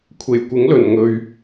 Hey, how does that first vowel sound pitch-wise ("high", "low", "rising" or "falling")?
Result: low